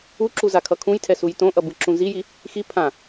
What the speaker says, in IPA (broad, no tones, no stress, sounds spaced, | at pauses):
u ǁ u z a kʰ ʌ kʰ ũ j tʰ ɛ s u j t õ ʔ ʌ b ɯ ǁ ũ z i j i | x i pʰ ã